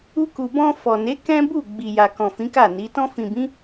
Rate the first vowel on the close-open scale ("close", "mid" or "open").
close